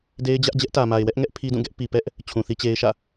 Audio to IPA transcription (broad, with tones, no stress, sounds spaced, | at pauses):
d e˦ ɪ̯ d͡ʑ ä˦ ʔ d͡ʑ ɛ˦ ʔ t ä˨ m a˨ ɪ̯ w ɛ˦ ʔ ŋ ɛ˦ ʔ pʰ i˦ d ũ˦˨ ɡ ɛ˦ ʔ p i˨ p ɛ˦ ʔ | t͡ɕʰ ũ˨ θ i˦ t͡ɕ e˦ ɪ̯ ʃ ä̰˦˨